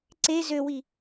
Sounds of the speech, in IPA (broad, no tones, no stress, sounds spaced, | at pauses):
ǀ e z ø w i